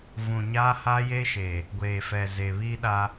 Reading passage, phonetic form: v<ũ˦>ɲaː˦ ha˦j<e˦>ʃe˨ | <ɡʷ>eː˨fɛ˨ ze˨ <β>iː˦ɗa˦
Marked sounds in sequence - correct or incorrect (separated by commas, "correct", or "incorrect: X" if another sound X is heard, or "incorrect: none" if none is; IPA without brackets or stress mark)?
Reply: incorrect: ũ˨, correct, correct, correct